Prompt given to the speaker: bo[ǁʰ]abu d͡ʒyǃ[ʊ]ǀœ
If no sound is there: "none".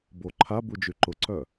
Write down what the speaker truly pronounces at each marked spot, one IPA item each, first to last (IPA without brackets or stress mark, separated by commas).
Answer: ǃʰ, ʊ